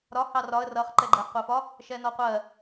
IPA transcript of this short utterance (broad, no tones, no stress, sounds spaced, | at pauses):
ɾ ɒ h ɑ r ɒ ə̯ r ʌ χ ǃ ɛ ɡ͡ǃ æ χ qʷ æ f ɒ | ʃ ɛ n ɔ qʷ ɜ